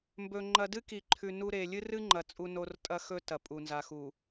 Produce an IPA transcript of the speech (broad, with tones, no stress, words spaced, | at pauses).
mbɵ˨ ŋ͡ǃɐ˨dɨ˦ ki˨ǃʰʉ˨ nu˦ ɾe˨ lʲɨ˦rɨ˦ŋ͡ǃɐ˨ t͡sʼu˦no˦r tʼɐ˦xɵ˦ tɐ˨ pʼu˨nza˨xu˨